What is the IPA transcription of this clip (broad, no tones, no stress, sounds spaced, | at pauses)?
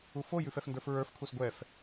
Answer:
u f o j ʉ f ɛ f n d ə˞ f ɹ ə˞ f kʰ u s ɡʷ ɛ f